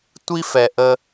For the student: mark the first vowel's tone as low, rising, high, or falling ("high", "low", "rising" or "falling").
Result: high